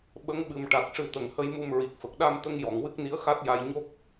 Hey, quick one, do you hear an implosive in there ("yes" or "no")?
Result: yes